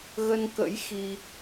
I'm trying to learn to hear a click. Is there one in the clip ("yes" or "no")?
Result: no